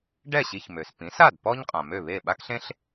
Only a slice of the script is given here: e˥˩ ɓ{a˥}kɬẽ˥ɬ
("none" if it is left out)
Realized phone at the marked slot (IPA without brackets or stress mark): a˥